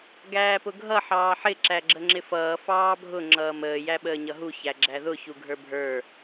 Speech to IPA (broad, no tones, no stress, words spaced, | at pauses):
ɡæːpʊɡʱʌ ħɑːħɪ ǁæɡ͡ǁəŋ͡ǁɪfʌː fɑːbʱʊ ŋ͡ǁʌːməː jæɓəːɲʌɦu çæɡ͡ǁæðʊ çuɡʱə˞bʱə˞